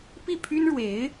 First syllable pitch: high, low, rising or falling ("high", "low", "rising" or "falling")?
falling